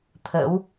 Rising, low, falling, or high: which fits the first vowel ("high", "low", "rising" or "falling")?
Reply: rising